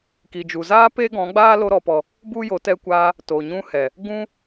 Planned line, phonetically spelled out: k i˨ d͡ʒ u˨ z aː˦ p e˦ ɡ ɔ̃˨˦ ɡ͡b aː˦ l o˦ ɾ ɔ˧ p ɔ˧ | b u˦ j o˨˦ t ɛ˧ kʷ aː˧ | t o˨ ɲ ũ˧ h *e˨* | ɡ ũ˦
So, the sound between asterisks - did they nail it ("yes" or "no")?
no